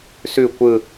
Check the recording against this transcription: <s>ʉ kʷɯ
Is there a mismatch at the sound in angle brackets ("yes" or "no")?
no